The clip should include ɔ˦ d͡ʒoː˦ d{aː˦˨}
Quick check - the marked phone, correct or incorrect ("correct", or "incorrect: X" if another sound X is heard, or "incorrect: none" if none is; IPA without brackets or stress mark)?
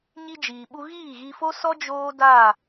correct